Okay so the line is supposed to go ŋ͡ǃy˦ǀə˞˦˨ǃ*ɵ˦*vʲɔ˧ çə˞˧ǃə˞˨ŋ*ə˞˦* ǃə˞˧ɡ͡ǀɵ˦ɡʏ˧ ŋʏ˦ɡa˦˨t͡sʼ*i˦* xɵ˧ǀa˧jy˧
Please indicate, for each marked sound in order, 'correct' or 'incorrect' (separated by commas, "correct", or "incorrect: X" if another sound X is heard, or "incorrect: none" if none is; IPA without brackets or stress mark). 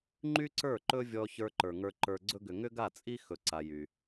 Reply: correct, incorrect: ə˞˧, correct